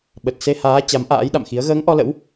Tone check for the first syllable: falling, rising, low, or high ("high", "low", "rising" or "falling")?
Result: low